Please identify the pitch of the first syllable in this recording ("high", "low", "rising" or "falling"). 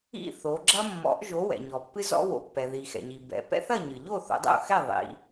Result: falling